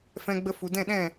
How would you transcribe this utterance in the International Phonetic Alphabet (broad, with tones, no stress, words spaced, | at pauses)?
fɛ̃˧ɡ͡bə˧ fu˨dɛ̃˦˨ɗɛ̃˦˨